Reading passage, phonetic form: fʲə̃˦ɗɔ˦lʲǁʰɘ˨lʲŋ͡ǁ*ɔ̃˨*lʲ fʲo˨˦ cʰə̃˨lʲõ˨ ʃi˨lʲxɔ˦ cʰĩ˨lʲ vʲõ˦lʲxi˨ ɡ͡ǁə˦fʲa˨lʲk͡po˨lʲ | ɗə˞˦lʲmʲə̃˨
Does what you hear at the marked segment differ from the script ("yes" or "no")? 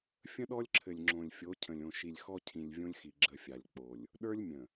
yes